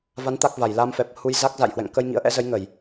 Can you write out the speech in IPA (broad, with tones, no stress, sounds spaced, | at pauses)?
v a˨˦ n t̪ a˦˥ k̚ v a˧˩ j l a˧ m f ɛ˨˩ p̚ h u˧ j z a˦˥ k̚ z a̰˧˨ j h w ɛ̰˧˨ ŋ k ə˧ j ŋ ḭ˧˥ ə̯ ʔ ɛ̰˧˥ z ə˨˦ j ŋ ə˧˩˨ j